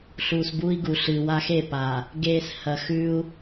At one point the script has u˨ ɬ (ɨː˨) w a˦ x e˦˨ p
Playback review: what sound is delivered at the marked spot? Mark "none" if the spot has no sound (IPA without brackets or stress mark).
ɨː˨